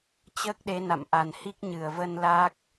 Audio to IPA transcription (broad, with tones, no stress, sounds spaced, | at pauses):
t͡ɕ əː˦˥ k̚ ɗ e˨˦ n a̰˧˨ m ʔ a˨˩ n h i˦˥ k̚ ɲ ɨ˧˩ ə̯ v ə˧ n l a˦˥ k̚